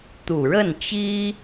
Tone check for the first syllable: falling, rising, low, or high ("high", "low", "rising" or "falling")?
low